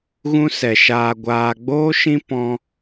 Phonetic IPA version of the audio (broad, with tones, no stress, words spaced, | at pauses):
ɣũ˦sɛ˧ ʃaː˧ɡʷaː˧ɡ͡boː˦ʃĩ˦ pɔ̃˦